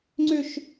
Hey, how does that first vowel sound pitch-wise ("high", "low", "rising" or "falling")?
high